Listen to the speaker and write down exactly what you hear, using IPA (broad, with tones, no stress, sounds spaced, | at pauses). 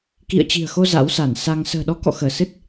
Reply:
k ḭ˧˨ ə̯ t͡ɕ i̤˨˩ ə̯ x o˧ z a̰˧˥ w s a˧˩ n s a˧ ŋ s ə̤ː˨˩ ɗ ɔ˨˦ k ɔ̰˧˨ x əː˧˩ s ɨ˦˥ t̚